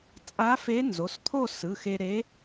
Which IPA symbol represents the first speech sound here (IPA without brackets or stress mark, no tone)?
t͡sʼ